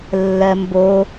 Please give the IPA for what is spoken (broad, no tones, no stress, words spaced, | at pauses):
lːɜmbo